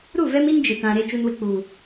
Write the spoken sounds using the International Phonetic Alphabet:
ɾ u˦˨ v ɛ˦ m i˦ n d͡ʒ ɪ˨ t ã˨ ɾ e˦ t͡ʃ u˦ n w ɪ˦ k͡p uː˨

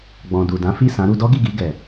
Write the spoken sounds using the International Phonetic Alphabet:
ɡ͡b ɔ̃˨ d u˨ d ã˨˦ f i˦˨ s ã˨˦ ɾ u˧ d ɔ˦ ɡ i˦˨ ɡ i˧ ɡ ɛ˨

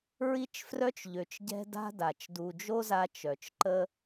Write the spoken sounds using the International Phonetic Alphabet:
ɹ i˦ t͡ʃ f r œ˦ t͡ʃ ʎ ø˨ t͡ʃ ɟ ɛ̤˦ d a̤˦ d a˨ t͡ʃ d u˨ d͡ʒ o˦ z a˧ t͡ʃ œ˨ t͡ʃ ǃ ə˦

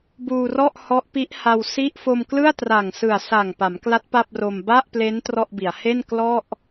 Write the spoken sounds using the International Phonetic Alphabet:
b uː˧ r ɔ˥˩ ʔ h ɔ˦˥ ʔ p i˦˥ ʔ h a˧ w s i˥˩ ʔ f o˧ m k l ɯ˥˩ a̯ t r a˨˩ ŋ s ɯ˨˩ a̯ s a˨˩ ŋ p a˩˦ m k l a˦˥ t̚ p a˥˩ p̚ r o˧ m b a˥˩ ʔ p l e˦˥ n t r ɔ˥˩ ʔ b i˩˦ a̯ h e˥˩ n k l ɔ˥˩ ʔ

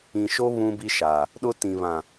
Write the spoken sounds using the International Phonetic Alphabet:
ĩ˨ ʃ o˦ β ũ˦ b i˦ ʃ a˨ | ɗ ʊ˦ t ĩ˨ β ã˨

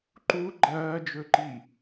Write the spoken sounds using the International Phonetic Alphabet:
ǃ u ɡ͡ǃ ɐː d͡ʒ ɵ ǃ i

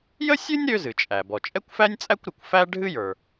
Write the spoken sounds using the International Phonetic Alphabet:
j ə˥ sʲ ɨ˥ nʲ ɾ ø˥ z ɨ˩ t͡ʃʼ æ˩ b ɔ˩ t͡ʃʼ ɛ˥ kʷ f æ˥ nʲ t͡sʼ æ˥ kʷ ɾ ɨ˩ kʷ f æ˥ ɖʱ ɨ˥ j ə˞˩

